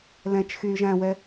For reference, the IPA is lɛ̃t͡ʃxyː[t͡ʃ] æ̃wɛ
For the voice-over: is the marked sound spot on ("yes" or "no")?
no